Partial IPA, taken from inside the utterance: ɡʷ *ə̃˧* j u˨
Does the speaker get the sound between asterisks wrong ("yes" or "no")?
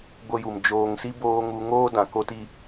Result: yes